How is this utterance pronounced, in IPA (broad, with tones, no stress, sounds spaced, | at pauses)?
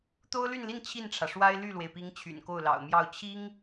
t̪ o˥ ʊ̯ l y˥˧ n l i˥˧ n t͡ɕʰ i˥˩ n ʈ͡ʂʰ ä˩ ʂ w a˥ ɪ̯ l y˥˩ l w e˩ ɪ̯ p i˧˥ ŋ t͡ɕʰ y̰˨˩ n k o˥˩ ʊ̯ l ɑ̰˨˩ ʊ̯ m j ɑ˥˩ ʊ̯ t͡ɕʰ i˥ ŋ